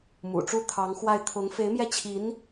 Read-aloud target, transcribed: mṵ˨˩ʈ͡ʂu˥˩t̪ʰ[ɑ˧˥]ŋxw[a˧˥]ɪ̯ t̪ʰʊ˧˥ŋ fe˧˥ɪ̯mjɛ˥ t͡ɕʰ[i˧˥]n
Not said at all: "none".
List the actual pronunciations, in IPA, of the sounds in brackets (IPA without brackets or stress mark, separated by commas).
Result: ɑ˧˥, a˥˩, i˧˥